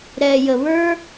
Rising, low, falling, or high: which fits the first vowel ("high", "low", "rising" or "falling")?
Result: low